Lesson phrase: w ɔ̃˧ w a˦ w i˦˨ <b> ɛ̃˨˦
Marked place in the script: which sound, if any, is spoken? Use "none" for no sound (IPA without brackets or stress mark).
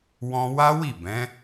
b